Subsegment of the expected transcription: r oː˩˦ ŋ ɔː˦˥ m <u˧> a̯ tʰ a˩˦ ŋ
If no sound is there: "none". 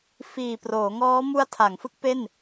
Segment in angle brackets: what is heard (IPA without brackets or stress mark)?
u˦˥